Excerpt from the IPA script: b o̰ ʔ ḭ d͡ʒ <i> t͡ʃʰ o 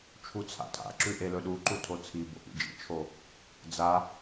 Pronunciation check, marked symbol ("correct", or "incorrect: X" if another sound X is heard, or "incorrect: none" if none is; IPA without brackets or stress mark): incorrect: ḭ